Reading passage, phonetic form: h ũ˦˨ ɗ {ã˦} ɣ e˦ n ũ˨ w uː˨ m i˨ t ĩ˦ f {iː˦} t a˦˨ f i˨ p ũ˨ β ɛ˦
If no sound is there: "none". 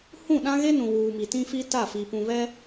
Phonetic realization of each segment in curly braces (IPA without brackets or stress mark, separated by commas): ã˦, i˦